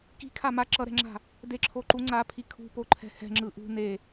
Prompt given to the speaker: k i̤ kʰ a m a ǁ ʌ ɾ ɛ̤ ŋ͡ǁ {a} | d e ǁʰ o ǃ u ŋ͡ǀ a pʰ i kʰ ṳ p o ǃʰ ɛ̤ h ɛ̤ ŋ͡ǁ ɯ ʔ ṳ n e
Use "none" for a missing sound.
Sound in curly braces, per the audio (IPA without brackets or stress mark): a̤